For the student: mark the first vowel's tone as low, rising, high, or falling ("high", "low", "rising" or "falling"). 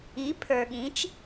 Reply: rising